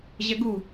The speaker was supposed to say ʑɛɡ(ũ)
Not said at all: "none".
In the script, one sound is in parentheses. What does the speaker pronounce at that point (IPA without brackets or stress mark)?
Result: u